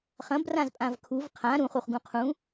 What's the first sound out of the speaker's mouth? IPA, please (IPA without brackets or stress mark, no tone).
χ